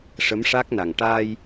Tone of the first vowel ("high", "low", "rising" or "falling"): rising